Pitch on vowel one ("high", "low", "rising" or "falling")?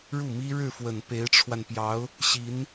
falling